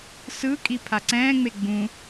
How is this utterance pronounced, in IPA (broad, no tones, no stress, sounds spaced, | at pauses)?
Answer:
s ɯ kʼ i pʰ a ǀ ɛ̃ː ŋ͡m e ɡ͡b ũ